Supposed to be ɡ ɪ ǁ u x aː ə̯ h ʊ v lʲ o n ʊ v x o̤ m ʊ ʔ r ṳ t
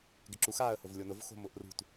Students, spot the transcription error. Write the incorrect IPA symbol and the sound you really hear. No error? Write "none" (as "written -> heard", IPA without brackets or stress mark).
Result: none